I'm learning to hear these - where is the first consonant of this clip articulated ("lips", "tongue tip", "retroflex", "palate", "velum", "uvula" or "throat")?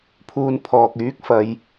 lips